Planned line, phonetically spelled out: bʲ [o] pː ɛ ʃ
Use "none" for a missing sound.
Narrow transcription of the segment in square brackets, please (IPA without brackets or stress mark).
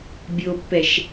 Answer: o